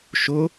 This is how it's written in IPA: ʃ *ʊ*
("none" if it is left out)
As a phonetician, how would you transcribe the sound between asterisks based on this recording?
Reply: ʊ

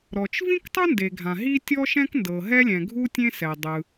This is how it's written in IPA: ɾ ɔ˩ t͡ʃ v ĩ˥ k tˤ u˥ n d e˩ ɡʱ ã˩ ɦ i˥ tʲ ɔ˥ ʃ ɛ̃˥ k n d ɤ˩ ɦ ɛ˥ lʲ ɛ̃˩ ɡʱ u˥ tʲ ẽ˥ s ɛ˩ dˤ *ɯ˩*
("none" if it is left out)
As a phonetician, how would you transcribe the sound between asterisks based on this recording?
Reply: ɯ˩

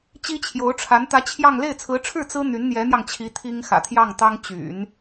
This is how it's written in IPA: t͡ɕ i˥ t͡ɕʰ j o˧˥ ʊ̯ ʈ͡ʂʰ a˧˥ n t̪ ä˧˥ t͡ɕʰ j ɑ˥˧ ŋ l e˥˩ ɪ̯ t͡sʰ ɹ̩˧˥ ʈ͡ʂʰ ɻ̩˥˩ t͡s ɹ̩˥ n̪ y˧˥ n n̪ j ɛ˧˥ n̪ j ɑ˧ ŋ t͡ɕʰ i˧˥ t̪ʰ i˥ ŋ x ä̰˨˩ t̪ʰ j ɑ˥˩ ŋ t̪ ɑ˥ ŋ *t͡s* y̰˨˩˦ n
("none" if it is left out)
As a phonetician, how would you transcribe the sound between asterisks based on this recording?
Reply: t͡ɕ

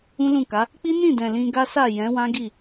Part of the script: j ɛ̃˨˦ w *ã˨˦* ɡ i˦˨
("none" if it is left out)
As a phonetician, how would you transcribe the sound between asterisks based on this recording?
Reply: ã˦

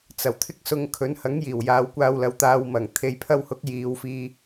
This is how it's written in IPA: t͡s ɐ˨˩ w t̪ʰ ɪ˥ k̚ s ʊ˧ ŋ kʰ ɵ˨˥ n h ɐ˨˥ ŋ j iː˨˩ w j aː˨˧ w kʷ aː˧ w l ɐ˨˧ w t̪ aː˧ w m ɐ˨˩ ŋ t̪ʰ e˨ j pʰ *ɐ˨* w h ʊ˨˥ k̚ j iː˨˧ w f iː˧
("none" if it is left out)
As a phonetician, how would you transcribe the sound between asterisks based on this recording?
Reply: ɐ˧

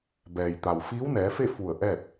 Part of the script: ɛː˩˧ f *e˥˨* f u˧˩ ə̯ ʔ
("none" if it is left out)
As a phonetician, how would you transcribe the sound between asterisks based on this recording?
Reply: e˥˨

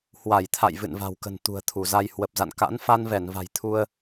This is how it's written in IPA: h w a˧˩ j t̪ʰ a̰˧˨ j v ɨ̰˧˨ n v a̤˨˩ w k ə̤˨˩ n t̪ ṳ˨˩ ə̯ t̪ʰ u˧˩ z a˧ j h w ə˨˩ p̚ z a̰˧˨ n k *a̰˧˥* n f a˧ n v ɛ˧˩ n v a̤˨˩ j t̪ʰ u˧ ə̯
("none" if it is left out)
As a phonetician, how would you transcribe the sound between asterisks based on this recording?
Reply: a̰˧˥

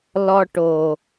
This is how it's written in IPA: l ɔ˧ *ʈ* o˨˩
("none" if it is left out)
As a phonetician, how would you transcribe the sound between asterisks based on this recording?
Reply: ʈ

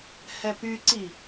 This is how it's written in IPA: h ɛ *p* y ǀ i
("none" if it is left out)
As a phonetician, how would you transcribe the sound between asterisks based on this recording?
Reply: p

